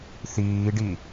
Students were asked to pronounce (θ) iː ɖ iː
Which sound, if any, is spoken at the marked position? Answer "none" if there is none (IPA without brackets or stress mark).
θ